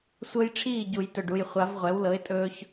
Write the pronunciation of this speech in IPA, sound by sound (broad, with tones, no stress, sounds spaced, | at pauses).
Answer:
sʷ ɤ˦ j ʈ͡ʂʰ iː˥˩ ɟ u˨˩˦ j t ɵ˨˩ ɖ u˨˩ j χʷ a˨˩˦ v ʁʷ ɛ˩˥ w l ɤ˩˥ ɪ̯ tʼ ɵː˦ ç